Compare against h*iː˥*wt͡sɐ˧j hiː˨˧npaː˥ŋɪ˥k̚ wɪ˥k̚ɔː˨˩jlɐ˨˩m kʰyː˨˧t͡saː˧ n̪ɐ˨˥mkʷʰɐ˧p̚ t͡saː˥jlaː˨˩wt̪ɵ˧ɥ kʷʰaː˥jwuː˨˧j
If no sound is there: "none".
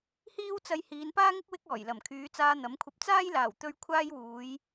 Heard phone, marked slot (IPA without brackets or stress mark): iː˥